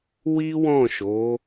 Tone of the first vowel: high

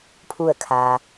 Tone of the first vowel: falling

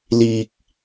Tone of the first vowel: low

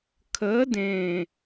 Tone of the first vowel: rising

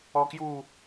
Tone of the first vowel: high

